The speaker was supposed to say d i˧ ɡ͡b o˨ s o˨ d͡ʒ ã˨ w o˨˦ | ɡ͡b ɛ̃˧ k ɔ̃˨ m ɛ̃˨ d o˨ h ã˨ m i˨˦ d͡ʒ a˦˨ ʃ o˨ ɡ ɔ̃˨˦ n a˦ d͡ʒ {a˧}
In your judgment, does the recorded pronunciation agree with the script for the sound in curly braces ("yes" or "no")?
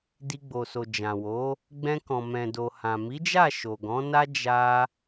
no